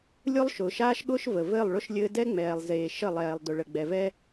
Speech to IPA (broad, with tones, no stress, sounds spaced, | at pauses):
lʲ ʊ˦ lˠ ʃ ʊː˨ ʃ aː˦ ʃ ɠ ʊː˦ ʃ v ə˨ v ɘː˦˨ lˠ ɭ ʊ˦ ʃ lʲ ɘː˦ d ɛ˦ ŋ͡m ɛː˨ lˠ z eː˨ ʃ ə˦˨ lˠ ɛː˨ lˠ d ʊ˨ ɭ ə˨ ɡ͡b ɛ˨ v ɛ˦